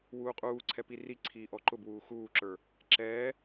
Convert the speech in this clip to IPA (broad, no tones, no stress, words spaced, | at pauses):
wuːqʼuː ǀʰɛpiri ǀʰiːʔɔǃʊbwuː xuːǁə˞ | ǁɛː